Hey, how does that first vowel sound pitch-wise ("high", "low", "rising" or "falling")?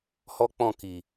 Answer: high